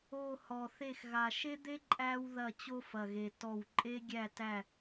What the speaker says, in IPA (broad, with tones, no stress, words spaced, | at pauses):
o˨˩ hɔ˨˩θe˦˨x ɣa˨˩ʃe˦d̪e˦ ǃʼæ˦wðɐ˦˨ t͡ɕo˦fɐ˨˩ɣe˨˩ tɔ˦˨w ǃʼe˦ɡʲæ˦˨tæ˦˨